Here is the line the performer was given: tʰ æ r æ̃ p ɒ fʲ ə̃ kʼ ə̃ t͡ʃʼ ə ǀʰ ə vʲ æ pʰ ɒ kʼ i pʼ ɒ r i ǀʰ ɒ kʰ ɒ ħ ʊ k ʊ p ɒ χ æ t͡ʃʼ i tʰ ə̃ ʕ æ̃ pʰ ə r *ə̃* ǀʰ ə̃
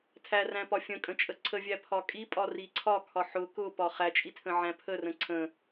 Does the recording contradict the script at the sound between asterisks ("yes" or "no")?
no